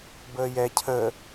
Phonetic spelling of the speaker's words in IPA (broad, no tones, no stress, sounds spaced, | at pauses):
b əː j ɛ cʰ ə